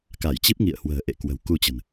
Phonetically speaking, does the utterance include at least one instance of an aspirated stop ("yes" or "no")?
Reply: no